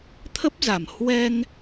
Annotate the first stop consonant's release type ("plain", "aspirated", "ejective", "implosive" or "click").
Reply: aspirated